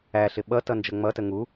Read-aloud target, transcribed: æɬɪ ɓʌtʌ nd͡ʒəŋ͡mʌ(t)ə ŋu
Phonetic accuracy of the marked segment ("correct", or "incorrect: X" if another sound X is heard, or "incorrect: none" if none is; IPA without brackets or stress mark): correct